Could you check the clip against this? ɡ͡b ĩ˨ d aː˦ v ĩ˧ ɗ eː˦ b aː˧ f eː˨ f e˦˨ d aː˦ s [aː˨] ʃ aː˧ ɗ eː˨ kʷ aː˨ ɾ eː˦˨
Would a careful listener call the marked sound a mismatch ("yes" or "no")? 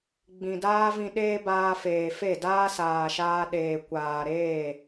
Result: no